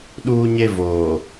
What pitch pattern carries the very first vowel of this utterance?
high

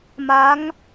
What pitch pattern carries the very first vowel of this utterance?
rising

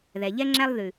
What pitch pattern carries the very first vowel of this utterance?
low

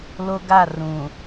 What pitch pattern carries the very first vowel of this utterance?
high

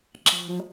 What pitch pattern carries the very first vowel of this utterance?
low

